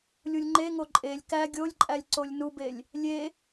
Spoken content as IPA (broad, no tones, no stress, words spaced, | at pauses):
lʲulʲŋ͡ǃeŋo ǃʼelʲ kæ ɡʲolʲǃʼælʲ ǀolʲnubelʲ | lʲe